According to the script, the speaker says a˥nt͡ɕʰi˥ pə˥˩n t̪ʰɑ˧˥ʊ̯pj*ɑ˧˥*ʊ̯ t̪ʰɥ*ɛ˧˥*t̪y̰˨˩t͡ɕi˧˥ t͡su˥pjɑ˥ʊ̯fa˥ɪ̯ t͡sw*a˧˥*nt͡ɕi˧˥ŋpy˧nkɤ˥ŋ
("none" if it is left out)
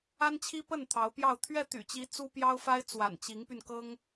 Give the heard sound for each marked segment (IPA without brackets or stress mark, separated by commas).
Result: ɑ˥˧, ɛ˥˩, a̰˨˩